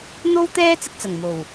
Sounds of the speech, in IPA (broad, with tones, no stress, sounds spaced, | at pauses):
n̪ o˥ w t̪ ɛː˥ t͡s ɪ˧ k̚ t͡s ɐ˨˩ ŋ m o˨˩ w